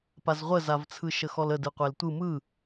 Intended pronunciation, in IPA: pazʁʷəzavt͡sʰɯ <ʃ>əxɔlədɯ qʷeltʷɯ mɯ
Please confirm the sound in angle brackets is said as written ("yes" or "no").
yes